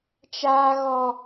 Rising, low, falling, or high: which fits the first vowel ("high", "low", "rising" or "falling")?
high